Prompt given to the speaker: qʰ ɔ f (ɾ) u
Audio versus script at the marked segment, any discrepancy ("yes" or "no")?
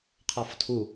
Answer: yes